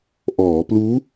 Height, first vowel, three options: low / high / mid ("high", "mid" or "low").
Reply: mid